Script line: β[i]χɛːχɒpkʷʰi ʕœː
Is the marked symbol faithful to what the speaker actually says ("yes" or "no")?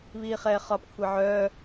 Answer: no